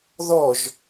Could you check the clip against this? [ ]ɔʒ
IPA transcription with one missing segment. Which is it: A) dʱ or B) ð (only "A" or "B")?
B